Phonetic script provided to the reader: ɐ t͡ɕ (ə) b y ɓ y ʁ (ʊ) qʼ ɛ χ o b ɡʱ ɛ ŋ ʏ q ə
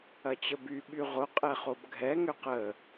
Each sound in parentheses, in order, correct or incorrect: correct, correct

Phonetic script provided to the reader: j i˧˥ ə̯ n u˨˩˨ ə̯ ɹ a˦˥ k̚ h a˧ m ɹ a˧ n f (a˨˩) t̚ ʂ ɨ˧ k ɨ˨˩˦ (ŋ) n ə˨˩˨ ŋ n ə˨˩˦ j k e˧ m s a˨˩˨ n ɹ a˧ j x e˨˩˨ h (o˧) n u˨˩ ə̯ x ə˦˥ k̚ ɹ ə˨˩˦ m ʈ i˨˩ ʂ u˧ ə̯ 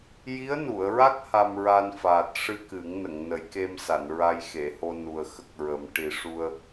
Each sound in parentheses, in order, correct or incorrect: incorrect, correct, correct

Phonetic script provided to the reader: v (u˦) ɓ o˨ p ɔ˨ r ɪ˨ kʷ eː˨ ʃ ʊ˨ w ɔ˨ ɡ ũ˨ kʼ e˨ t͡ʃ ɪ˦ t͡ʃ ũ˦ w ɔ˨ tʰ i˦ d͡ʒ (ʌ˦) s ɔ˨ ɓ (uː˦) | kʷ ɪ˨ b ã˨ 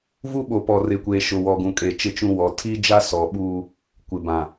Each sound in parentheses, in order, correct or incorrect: correct, incorrect, correct

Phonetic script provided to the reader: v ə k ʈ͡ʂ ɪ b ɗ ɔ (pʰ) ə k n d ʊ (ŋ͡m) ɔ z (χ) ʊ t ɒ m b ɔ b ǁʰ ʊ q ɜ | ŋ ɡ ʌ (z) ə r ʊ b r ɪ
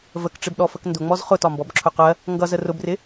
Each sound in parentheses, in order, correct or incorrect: incorrect, correct, correct, correct

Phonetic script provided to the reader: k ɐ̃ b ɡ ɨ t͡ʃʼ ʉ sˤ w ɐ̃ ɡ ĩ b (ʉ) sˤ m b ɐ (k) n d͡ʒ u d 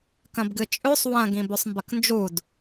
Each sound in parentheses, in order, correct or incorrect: correct, correct

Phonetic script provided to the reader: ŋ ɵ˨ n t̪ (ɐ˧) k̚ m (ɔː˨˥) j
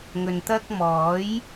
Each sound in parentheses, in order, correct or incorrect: incorrect, correct

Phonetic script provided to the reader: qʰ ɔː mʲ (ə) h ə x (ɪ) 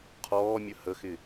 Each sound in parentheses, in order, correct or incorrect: correct, correct

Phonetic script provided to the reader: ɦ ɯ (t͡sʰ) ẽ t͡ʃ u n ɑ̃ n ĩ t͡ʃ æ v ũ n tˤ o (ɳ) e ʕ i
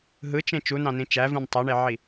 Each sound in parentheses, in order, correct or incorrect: incorrect, correct

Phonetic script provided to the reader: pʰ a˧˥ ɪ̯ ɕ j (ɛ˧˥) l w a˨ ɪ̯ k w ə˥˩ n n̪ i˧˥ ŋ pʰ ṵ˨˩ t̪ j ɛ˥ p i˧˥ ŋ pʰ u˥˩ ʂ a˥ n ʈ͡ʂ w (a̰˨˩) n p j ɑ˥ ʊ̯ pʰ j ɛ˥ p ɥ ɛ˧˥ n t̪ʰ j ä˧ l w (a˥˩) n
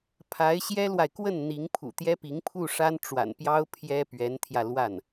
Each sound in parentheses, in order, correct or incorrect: incorrect, correct, correct

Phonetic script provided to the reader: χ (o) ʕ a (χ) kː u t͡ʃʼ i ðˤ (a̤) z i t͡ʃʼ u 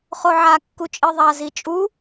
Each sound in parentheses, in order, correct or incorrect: correct, incorrect, incorrect

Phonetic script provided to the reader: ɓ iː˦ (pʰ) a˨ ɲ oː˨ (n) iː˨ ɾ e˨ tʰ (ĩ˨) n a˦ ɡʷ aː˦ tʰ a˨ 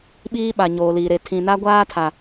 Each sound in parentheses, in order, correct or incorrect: incorrect, incorrect, correct

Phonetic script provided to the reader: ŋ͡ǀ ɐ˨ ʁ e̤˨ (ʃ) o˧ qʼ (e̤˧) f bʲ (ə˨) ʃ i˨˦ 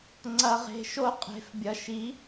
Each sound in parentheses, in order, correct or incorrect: correct, incorrect, incorrect

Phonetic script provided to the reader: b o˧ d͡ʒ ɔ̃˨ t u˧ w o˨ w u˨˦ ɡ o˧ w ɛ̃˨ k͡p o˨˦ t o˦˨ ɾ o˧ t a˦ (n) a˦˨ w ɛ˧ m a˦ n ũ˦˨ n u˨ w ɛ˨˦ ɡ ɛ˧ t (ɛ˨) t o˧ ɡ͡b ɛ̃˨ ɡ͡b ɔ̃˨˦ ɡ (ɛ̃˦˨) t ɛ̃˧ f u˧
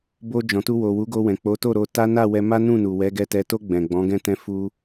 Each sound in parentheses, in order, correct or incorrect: correct, correct, correct

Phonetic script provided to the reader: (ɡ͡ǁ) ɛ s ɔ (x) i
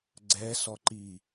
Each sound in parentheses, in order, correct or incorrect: incorrect, incorrect

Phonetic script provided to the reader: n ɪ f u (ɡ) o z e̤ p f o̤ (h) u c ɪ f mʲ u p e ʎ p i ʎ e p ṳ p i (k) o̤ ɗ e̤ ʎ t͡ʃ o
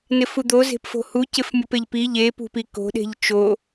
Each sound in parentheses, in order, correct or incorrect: incorrect, correct, correct

